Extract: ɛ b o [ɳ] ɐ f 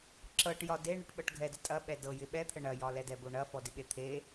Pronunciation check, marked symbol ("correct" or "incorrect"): correct